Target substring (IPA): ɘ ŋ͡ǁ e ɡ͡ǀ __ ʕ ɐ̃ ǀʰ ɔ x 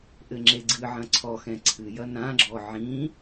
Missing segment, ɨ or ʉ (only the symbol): ɨ